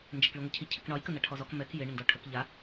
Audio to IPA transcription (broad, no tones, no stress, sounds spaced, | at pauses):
n d͡ʒ ɛ k ɭ i ŋʷ ɪ cʰ i cʰ ɪ k ɳ ɒ j k ə n a ʈʰ ɔ z ɔ k m ɛ k j ɪ ɳ ɪ n d ɔ ʈʰ ə k ʎ a